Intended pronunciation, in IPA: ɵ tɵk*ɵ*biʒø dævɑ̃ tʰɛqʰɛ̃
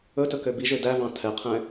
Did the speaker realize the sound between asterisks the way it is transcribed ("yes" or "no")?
no